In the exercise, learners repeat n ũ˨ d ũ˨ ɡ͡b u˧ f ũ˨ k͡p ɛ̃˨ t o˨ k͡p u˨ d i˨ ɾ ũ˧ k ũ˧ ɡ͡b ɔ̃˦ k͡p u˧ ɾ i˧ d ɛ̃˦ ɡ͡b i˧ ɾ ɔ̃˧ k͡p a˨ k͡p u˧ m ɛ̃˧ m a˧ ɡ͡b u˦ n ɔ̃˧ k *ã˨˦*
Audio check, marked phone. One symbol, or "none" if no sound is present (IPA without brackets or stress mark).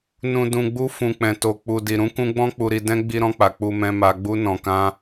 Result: ã˦